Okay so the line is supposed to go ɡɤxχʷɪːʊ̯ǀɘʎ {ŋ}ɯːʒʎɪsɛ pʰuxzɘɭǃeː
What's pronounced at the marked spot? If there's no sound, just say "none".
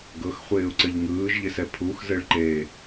ŋ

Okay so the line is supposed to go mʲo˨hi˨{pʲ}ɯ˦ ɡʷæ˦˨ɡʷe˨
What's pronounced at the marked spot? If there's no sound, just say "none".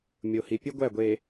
pʲ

